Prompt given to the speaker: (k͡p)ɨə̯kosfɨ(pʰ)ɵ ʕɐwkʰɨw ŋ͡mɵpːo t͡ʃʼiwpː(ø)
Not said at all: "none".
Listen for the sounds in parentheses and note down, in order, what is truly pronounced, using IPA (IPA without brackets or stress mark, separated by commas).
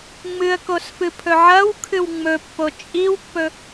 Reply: ŋ͡m, pʰ, ɵ